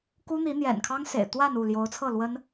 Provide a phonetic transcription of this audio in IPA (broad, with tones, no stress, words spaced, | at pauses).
ku˥n̪i˧˥n̪jɛ̰˨˩nkʰɑ˥ŋ sḛ˨˩ɪ̯t̪wa˥˧n u˥˩ ljo˧˥ʊ̯t͡sʰɤ˥˩ lwə˥n